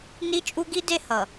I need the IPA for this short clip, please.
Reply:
n i˦ t͡ʃʼ u˦ ɡ i˦ d e˦ h ʌ˨

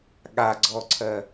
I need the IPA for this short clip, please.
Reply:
ɠ a ɡ͡ǀ ɔ ǀʰ ɜ

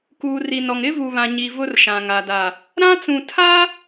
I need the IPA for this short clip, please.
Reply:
k uː˨ r i˨ n ɔ˨ ŋ ɪ˦ v u˨ β ã˨ ɲ i˨ v ʊ˦ r ʃ ã˨ ŋ a˨ d a˨ | ɾ ã˦ t͡s ũ˨ tʰ a˦

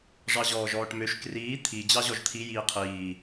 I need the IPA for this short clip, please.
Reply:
ʐ ɑ ʑ ɔː ʒ ɔː ʈ m ø ʃ k r iː t̪ʰ i d͡ʑ ɑ ʑ ɔ ʒ t̪ʰ i j iː qʰ iː

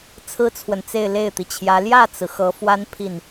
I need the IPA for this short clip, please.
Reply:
t͡sʰ ɹ̩˥ t͡sʰ w ə˨ n t͡s e˥˧ ɪ̯ l e˥˩ ɪ̯ t̪ i˩ t͡ɕʰ j ä˧˥ l j ä˥˩ t͡s ɹ̩˩ x ɤ˧˥ f w a˥ n pʰ i˥˩ n

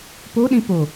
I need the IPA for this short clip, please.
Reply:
p o ɗ ĩ p o

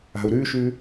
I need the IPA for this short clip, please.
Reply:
a̤ u̯ ɾ ʉ ʃ ʉ

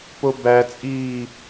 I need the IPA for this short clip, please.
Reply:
p o b æ t͡sʼ iː

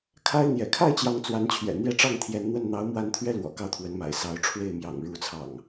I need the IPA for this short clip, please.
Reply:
kʰ a˦ ɪ̯ n̪ j ɛ̰˨˩ kʰ a˥˨ ɪ̯ t͡ɕ j ɑ˨˦ ŋ t͡s w a˨˦ n t͡ɕʰ ɥ ɛ̰˨˩ n̪ j ɛ˦ ʈ͡ʂ ɑ˥˨ ŋ t̪ʰ j ɛ˨˦ n n̪ w ə˥˨ n n̪ ɑ˨˦ ʊ̯ m w a˨˦ n t̪ʰ ɥ ɛ˧ l w ɔ̰˨˩ k ɑ˦ ʊ̯ t̪ʰ w ə˨˦ n m a̰˨˩ ɪ̯ s ɑ˨˦ ʊ̯ ʈ͡ʂʰ w e˥˨ ɪ̯ m j ɑ̰˨˩ ŋ ɻ u˨˦ t͡sʰ ɑ̰˨˩ ŋ

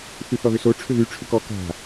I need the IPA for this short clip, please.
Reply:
θ y θ ɔ ð ʏ s o ʈ͡ʂʰ ʏ ð y ʈ͡ʂʰ ʏ k ɔ k a̤

